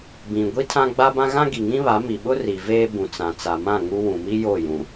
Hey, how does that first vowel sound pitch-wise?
low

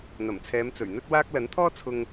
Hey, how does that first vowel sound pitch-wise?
low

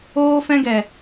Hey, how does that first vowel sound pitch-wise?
high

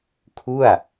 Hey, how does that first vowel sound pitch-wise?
falling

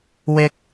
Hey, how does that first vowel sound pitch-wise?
high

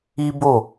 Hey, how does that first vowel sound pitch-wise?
high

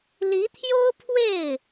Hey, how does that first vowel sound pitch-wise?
rising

